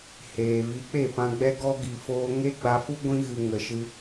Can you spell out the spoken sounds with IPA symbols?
h eː˨ v i˨˦ k͡p e˦˨ p ã˧ ɡ͡b ɛ˦ ɡ ɔ˦ ɡ i˨ f oː˧ ŋ e˦ ɡ͡b a˧ f u˦ ɡʷ ĩ˧ ɣ ɨ˨ ŋ ə˨ ʃ ɨ˧

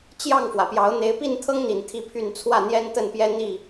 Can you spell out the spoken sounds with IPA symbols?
t͡ɕ j ɑ˥˨ ŋ f w ä˩ p j ɑ˨˦ ʊ̯ n̪ e˨˦ ɪ̯ p i˥˨ n t̪ʰ ɤ˦ ŋ n̪ i˨˩ n t̪ʰ i˦ pʰ y˥˨ n t͡sʰ w ä˥˨ n̪ j ɛ˦ n t̪ ə˥˨ n p j ɛ˦ n̪ i˥˨

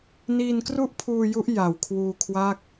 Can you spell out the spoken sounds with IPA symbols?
n iː˧ n k r u˥˩ ʔ pʰ uː˧ j u˦˥ ʔ j a˨˩ w kʰ w uː˧ kʰ w a˥˩ k̚

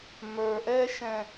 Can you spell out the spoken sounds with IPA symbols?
m ə˞˨ ʔ ɛ˦ ʃ ɛ̃˨

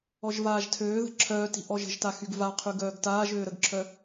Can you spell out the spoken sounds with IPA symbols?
ɔ ʒ v aː ʒ tʰ øː ð ə̤ ǁʰ œː t i̤ ʔ ɔ ʒ ə̤ ʒ t a x y ɡ v a qʰ y ɡ œː ɡ t aː ʒ øː ɾ ə ɡ ǁʰ œ

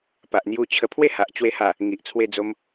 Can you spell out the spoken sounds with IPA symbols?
p a˨ ʔ n̪ j u˧ t͡ɕʰ ə˧ pʰ w e˥˧ h a˨ ʔ t͡ɕ w e˧ h a˨˩ | ŋ i˨ ʔ t͡sʰ w e˧ d͡z o˧ m

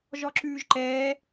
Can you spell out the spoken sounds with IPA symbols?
ʒ ɔ ǁ ʉː ʒ ǃ ɛː

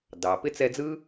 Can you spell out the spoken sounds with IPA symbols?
d ɑ˩ p ɪ˥ t͡s ɛ˦ d͡z ɯ˥

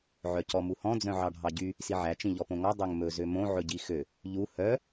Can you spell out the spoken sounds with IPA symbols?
ʕ œ c ɔ m u h ɔ̃ d͡z œ̃ ʕ ɑ ɖʱ ɑ ɟ y | s i ʕ æ t͡ʃ ĩ ʎ ɔ p õ ŋ ɔ dˤ ø ŋ m ɵ z ø m õ ʕ ɵ ɟ i x ø | ʎ u h œ

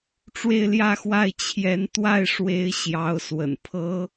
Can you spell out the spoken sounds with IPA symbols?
ʈ͡ʂ w e˥˧ ɪ̯ l j ä˥˧ x w a˥˩ ɪ̯ t͡ɕʰ j ɛ˧˥ n t̪ w a˥˩ ɪ̯ ʂ w e˧˥ ɪ̯ ɕ j ɑ˧˥ ʊ̯ s w ə̰˨˩ n pʰ ɤ˥

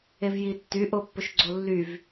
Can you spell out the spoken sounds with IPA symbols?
e v j i tː y ʔ o pː ɵ ʃ ɡ͡ǀ o lː y v

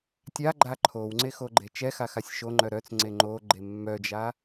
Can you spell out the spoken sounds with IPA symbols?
tʲ a ɡ͡ǃ a ǃʰ o w ŋ͡ǀ e x o ɡ͡ǃ e t͡ʃ ɛ x a x a sʲ ʃ o ŋ͡ǃ œ ɾ œ t͡s ŋ͡ǀ e ŋ͡ǃ o ɡ͡ǃ e mː œ d͡ʒ a

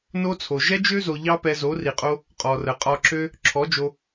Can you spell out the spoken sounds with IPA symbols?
n o˦ t͡sʰ o˨ ʒ ɛ˦ d͡ʒ ø˦ z o˨ ʎ ɑ˦ p ɛ˧ z o˨˦ r i˨ qʼ o˦ | qʼ ɔ˨ r ə˨ qʼ ɒ˧ ǁ ø˦ | ǁʰ ɔ˨˦ d͡ʒ o˧

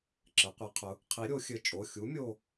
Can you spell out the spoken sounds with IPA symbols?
ǁ ɘ˩˧ qʷ i˩˧ qʰ ʊ˩˧ | qʰ i˨˥ ɾʲ o˩˧ xʲ ɘ˨˥ t͡ʃʼ o˩˧˩ xʲ u˨˥ mʲ o˥˧

